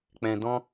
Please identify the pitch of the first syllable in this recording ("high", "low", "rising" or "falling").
low